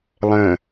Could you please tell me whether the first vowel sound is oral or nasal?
nasal